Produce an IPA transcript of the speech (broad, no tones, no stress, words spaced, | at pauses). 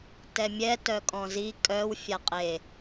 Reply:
tɛmʲɛ tœkʼɔ̃zi kʼœw fʲaqʼe